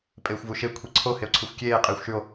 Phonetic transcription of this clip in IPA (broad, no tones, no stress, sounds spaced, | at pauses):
pʼ eː xʷ v u ʃ e kʷʰ i ǀʰ o h e o̯ ǀʰ ɨ xʷ kʲ eː qʼ eː xʷ ʃ ʉ o̯